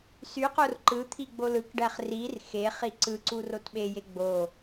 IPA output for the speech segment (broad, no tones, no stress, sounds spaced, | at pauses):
s y q o r ǃ ɯ t̪ʰ i ɡ͡b o l ɯ k ɖ æ χ r i r x e χ i ǀ ɯ ǀ u r o t ɓ e j e ɡ͡b o